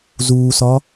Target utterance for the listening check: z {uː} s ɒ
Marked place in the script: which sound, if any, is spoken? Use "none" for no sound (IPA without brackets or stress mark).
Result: uː